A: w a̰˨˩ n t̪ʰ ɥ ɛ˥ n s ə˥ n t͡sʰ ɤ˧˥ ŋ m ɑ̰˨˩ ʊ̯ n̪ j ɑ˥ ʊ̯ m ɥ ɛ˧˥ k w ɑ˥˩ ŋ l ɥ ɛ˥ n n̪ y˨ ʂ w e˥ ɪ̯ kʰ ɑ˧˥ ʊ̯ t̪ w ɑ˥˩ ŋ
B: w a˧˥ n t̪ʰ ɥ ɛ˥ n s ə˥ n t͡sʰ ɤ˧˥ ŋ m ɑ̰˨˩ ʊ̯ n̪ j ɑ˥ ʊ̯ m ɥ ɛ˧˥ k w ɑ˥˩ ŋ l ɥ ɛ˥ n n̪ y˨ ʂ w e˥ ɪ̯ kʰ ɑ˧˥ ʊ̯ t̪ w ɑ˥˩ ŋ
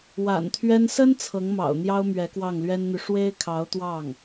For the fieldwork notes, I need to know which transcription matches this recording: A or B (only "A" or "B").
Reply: A